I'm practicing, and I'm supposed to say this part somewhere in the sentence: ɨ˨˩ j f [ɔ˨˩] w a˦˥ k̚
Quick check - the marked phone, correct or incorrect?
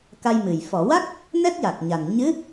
incorrect